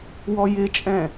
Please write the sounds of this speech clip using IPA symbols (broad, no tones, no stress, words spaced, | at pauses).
wɔjɪt͡ʃʼɛ̃